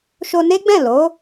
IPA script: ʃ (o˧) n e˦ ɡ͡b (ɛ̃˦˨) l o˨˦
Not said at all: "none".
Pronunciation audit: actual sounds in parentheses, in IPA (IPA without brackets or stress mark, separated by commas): o˧, ɛ̃˦˨